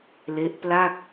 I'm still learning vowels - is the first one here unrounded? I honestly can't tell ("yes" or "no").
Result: yes